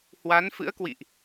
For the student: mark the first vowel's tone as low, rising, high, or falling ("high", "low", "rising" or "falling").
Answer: rising